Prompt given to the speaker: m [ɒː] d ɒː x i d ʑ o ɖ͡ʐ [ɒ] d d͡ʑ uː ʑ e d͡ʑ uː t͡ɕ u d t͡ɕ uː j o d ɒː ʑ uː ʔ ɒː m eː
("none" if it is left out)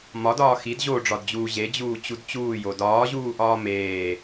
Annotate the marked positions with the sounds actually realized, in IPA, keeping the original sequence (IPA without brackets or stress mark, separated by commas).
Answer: ɒ, ɒ